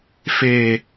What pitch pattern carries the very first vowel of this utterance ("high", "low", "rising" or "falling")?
low